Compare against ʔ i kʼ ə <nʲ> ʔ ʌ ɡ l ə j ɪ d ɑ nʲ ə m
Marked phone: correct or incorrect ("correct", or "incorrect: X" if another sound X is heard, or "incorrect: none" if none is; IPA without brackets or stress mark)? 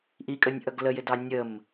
correct